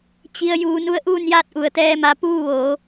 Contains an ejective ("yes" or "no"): no